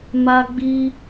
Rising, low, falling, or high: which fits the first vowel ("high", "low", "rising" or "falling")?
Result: high